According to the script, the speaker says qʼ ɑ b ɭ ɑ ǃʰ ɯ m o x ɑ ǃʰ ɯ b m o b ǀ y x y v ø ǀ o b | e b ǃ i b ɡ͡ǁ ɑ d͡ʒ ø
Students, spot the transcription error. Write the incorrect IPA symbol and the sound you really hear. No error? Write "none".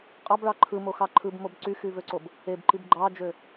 ɡ͡ǁ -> ɡ͡ǃ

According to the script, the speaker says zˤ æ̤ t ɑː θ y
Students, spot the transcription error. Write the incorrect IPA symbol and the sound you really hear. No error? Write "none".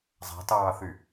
none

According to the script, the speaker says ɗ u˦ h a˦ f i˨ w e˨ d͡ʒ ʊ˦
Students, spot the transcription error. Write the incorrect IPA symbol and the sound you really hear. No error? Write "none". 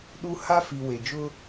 none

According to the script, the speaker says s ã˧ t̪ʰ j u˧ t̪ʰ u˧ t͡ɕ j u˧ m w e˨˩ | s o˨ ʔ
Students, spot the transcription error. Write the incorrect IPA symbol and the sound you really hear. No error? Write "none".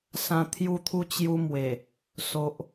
none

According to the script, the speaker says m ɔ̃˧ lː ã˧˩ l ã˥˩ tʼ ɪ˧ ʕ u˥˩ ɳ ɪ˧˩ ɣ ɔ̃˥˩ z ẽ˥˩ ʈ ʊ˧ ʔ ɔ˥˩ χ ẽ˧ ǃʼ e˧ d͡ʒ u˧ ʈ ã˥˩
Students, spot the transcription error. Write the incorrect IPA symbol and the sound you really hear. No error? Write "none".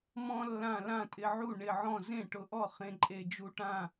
ɣ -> ʕ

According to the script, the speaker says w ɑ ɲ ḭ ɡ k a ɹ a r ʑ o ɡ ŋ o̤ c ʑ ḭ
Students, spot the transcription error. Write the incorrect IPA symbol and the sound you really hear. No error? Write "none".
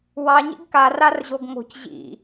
ɹ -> r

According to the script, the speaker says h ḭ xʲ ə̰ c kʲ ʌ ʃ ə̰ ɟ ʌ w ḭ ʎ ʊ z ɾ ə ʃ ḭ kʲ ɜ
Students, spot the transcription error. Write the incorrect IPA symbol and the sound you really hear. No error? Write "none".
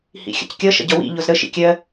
none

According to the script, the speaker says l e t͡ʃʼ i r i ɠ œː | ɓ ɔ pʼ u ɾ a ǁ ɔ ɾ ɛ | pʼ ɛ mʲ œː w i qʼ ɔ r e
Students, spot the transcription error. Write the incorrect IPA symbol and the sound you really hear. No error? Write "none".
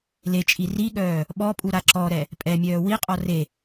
none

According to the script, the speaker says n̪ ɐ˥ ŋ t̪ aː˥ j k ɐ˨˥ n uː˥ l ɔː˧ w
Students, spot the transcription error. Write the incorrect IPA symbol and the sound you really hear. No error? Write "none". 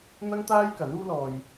w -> j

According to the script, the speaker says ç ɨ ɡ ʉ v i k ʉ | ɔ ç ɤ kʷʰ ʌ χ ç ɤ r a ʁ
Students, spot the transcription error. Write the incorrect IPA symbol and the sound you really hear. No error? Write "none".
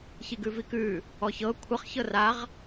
ɨ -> i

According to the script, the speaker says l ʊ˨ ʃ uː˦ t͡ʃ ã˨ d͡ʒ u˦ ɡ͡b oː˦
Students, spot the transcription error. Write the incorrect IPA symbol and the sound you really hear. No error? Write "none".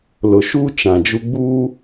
oː˦ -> uː˦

